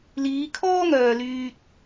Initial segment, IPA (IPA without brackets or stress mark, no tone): l